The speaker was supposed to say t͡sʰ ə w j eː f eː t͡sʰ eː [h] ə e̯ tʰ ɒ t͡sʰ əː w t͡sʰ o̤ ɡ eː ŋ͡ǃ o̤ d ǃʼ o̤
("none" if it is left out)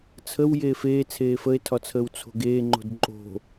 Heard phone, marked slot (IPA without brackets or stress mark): f